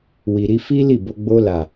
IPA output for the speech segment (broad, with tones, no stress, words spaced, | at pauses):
wi˨ɾi˧fi˦ li˦˨bo˧ ɡ͡bo˧ la˨